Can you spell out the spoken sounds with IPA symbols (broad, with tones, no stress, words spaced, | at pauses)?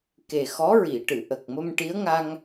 ke˨˩xɔ˧˥ɹi˨˩˨ʈɨ˨˩˨ ʔə˨˩k̚mə˧mʈi˧˥ə̯ŋa˧ŋ